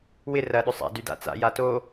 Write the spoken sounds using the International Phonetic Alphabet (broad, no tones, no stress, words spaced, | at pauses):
wɪ rɐ ɗʏsˤa̰ dyda̰t͡sa̰ jato